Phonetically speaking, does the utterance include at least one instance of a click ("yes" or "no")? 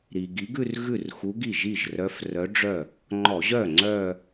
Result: yes